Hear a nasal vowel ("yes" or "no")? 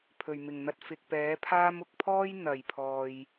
no